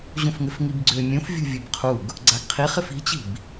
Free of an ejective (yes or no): yes